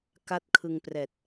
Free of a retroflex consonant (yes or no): yes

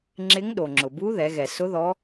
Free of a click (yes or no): no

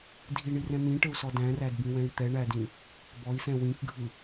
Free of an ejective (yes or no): yes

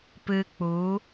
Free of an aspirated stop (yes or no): yes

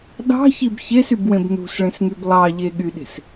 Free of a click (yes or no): yes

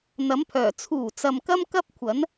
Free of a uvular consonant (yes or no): yes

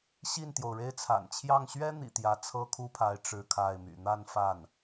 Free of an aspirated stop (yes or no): no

